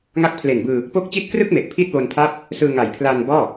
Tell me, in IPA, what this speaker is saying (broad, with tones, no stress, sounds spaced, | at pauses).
ŋ a˦˥ k̚ pʰ l e˨˩ n b ɯː˧ | p o˦˥ k̚ t͡ɕ i˦˥ t̚ k r ɯ˥˩ k̚ m e˨˩ ʔ pʰ i˥˩ t̚ w o˧ n pʰ a˥˩ p̚ | s ɯː˧ ŋ a˨˩ j pʰ l aː˧ n b ɔː˥˩